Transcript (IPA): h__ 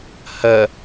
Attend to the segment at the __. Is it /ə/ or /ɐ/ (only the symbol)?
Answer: ɐ